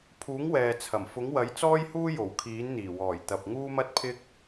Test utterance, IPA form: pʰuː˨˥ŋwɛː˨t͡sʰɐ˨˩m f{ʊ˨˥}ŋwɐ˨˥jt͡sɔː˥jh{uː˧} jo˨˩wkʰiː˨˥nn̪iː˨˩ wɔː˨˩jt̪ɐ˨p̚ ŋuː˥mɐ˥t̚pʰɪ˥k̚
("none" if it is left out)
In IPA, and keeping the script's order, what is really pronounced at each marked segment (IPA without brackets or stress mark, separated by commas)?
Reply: ʊ˨˥, uː˥